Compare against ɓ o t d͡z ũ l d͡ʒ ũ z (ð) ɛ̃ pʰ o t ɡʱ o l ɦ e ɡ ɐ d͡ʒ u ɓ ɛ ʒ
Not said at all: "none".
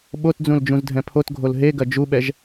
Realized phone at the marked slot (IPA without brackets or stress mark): dʱ